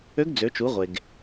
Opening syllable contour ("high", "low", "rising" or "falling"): rising